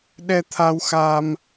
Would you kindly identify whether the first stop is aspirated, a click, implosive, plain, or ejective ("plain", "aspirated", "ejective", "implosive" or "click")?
implosive